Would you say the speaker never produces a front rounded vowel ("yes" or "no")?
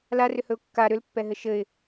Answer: no